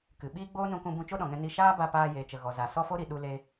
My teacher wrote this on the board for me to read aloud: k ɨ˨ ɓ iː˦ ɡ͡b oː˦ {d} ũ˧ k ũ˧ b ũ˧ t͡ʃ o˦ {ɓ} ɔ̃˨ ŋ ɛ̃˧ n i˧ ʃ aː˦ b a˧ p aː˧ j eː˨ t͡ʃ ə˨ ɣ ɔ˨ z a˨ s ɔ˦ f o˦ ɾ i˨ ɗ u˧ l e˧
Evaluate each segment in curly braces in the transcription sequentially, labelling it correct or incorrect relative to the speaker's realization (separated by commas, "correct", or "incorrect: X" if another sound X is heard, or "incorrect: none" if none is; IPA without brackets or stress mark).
incorrect: n, incorrect: ɗ